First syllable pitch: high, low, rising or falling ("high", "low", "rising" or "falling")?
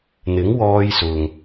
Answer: rising